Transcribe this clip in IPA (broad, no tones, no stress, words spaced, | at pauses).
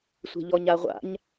sʷe̤ʎɔɲaʁʷa̰ɲ